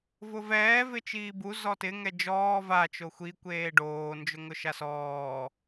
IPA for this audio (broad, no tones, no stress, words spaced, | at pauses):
vʊvɛː vɪt͡ʃiːbu zɔtɪ ŋɛd͡ʒɔː va t͡ʃoxʷi kʷeːɖoː nd͡ʒʊŋʊʃasɔː